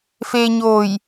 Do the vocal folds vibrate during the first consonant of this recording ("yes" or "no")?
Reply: no